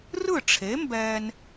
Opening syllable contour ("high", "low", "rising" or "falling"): falling